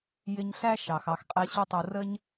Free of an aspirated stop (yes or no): yes